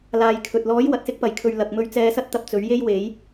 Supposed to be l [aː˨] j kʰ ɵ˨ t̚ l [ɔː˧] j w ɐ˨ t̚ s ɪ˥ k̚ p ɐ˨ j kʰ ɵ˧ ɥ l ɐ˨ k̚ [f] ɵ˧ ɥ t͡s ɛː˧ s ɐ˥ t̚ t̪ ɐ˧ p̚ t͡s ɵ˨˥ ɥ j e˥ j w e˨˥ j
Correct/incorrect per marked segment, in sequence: correct, incorrect: ɔː˨˥, incorrect: m

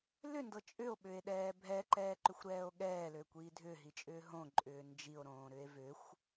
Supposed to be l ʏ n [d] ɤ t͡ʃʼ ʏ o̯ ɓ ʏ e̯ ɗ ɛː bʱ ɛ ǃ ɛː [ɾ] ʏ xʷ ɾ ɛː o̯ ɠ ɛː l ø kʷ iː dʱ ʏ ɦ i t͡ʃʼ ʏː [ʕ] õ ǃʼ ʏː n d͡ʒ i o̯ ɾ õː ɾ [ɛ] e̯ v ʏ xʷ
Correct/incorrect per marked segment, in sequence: correct, incorrect: ǃ, incorrect: ɦ, incorrect: ʏ

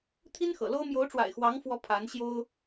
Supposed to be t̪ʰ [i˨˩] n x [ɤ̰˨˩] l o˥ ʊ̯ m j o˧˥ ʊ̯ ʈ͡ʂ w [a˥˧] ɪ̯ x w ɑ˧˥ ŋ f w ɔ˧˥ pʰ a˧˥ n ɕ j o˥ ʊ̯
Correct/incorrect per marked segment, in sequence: incorrect: i˥, correct, incorrect: a̰˨˩

